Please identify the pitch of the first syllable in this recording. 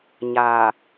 low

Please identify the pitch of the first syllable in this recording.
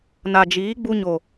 low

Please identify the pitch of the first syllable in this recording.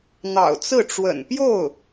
low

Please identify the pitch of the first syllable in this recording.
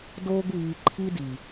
high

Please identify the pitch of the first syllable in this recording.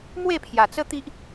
falling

